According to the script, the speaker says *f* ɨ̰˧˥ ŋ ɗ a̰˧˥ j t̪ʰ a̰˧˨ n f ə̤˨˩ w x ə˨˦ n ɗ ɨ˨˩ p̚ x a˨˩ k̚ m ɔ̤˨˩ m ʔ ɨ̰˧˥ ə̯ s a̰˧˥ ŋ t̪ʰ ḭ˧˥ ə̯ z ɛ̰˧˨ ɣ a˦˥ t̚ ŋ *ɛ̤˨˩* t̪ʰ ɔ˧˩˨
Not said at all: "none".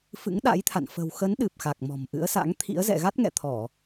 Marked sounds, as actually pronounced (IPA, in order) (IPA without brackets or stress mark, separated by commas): f, ɛ̰˧˨